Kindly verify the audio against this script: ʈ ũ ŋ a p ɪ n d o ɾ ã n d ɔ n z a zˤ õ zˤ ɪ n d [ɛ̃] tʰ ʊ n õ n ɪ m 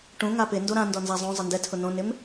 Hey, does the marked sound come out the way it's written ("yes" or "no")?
no